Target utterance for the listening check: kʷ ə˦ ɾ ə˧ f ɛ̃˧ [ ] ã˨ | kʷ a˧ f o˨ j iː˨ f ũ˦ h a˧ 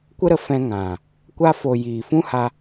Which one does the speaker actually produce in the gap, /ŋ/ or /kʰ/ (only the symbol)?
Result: ŋ